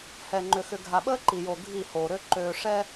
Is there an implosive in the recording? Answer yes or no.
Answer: yes